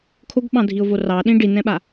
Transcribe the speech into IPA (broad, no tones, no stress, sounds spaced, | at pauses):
kʰ o ɡ ɓ ɑ̃ dʱ i ʊ̯ v o r ɑ ɗ ĩ ɖ i n ɛ̃ ɓ a